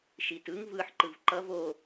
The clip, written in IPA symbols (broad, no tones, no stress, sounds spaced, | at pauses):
ʃ i t ɯ ŋ v ɯ ħ ǃ ɯ v ǃ ʌ v o